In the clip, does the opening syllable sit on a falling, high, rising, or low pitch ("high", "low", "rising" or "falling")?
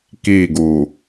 falling